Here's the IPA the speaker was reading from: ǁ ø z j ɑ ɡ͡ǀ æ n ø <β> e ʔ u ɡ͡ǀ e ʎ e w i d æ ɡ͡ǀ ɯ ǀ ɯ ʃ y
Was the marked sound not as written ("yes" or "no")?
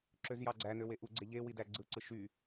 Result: yes